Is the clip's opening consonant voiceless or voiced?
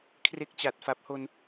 voiceless